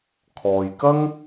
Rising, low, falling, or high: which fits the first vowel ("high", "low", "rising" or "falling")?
low